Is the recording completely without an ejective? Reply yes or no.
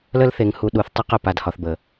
yes